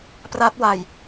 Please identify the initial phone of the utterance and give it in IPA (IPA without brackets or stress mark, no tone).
p